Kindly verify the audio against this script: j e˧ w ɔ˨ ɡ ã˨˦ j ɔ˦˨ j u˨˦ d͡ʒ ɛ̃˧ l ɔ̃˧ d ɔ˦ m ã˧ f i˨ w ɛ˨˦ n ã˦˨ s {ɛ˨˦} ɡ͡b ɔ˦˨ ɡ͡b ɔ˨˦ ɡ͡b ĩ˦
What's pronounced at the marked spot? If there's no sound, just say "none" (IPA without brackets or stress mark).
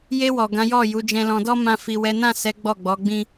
ɛ˨˦